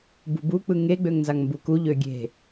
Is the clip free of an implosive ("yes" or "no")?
yes